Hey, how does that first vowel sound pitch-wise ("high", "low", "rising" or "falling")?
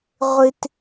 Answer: high